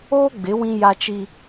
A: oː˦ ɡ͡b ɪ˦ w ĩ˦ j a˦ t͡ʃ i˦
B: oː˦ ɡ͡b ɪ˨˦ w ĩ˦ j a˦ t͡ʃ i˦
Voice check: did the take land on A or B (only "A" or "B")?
B